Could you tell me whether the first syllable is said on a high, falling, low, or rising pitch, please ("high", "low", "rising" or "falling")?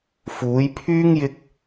rising